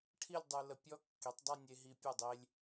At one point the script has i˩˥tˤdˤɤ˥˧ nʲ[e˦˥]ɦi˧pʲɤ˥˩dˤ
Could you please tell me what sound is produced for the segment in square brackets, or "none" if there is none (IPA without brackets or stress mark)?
e˧